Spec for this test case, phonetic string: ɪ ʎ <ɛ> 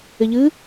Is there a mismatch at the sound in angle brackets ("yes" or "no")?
yes